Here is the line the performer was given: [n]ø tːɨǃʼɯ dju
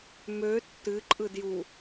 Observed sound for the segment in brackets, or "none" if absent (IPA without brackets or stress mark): m